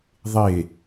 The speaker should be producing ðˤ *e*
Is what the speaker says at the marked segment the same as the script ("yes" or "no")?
yes